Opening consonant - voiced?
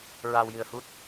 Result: yes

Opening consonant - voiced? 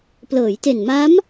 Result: no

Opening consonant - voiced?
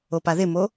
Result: no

